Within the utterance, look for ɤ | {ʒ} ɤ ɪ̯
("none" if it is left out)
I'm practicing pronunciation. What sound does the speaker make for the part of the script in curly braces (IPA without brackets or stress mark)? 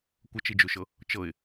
t͡ʃ